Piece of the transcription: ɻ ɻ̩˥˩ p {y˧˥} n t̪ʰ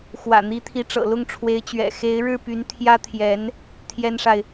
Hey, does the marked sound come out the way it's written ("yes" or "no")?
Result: yes